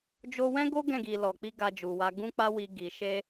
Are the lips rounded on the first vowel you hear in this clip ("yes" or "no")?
yes